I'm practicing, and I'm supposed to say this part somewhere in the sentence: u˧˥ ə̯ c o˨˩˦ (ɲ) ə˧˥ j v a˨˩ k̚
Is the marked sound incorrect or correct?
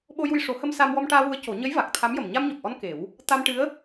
correct